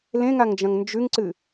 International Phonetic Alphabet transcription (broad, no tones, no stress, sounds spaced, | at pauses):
l ẽ ŋ a ŋ d͡ʒ ɐ̃ ŋ n d͡ʒ ʉ ŋ ǀ ɨ